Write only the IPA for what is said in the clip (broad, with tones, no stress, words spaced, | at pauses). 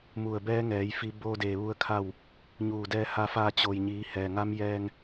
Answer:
mu˧˩ə̯bɛː˧˥ŋɛː˩˧j fi˧˥ boː˧deː˩ ʋu˥˨ə̯kʰa˥˨w | ɲuː˧˩dɛː˧ ha˧fa˧t͡ɕo˩jɲiː˩˧ hɛː˩ŋa˧˥mjɛː˧ŋ